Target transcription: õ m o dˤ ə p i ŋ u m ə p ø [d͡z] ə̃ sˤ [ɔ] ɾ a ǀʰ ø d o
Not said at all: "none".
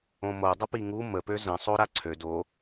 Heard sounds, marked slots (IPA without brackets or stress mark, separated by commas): z, o